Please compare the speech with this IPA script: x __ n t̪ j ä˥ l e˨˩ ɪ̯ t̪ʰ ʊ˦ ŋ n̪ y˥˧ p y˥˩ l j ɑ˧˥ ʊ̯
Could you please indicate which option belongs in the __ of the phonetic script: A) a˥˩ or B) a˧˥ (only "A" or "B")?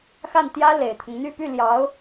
A